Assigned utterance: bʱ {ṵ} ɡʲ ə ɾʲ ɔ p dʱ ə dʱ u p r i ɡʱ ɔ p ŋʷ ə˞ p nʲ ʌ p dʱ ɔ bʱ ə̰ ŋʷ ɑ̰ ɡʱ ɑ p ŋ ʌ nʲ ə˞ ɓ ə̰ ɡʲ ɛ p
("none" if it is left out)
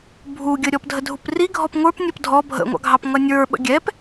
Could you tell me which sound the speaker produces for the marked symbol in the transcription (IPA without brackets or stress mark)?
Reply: u